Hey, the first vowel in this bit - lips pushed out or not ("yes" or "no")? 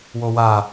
yes